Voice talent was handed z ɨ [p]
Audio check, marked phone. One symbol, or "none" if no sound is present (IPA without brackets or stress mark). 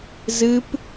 p